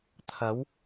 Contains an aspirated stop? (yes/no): yes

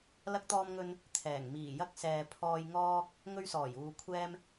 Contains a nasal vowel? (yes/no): no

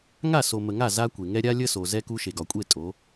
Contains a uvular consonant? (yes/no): no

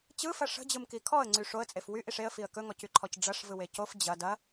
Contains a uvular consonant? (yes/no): no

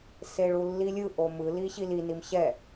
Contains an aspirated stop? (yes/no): no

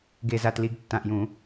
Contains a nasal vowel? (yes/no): yes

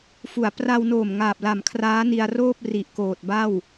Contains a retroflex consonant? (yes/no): no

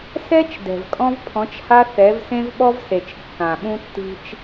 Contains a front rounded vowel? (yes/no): no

